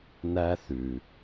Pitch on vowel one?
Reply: high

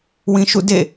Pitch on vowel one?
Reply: low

